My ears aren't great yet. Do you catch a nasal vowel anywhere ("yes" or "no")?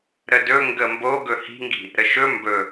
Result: no